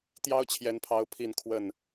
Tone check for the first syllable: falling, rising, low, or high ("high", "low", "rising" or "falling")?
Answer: high